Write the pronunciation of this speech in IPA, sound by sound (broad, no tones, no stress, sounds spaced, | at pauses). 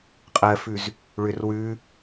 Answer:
qʼ ɜ f ʉ z | ɭ ʏ r w ʉ